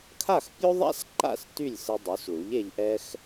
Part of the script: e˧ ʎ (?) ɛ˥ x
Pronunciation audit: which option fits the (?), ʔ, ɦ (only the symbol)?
ʔ